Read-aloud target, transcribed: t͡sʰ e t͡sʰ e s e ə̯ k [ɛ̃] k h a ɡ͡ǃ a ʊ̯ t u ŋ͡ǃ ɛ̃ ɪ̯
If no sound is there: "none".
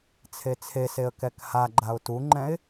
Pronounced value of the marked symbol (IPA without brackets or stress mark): ɛ